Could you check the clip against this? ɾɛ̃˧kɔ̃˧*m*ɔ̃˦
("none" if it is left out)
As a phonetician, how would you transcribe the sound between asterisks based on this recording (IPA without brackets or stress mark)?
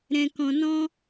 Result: n